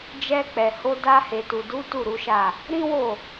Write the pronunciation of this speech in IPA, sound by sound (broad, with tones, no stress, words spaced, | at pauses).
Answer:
d͡ʒɛ˧k͡pɛ˨ho˧ da˧he˨tu˨du˨˦ tu˦˨ɾu˨˦ʃa˦˨ | ɾĩ˦wo˦˨